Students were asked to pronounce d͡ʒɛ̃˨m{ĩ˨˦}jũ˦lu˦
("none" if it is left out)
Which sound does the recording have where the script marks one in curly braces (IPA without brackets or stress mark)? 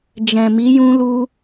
i˨˦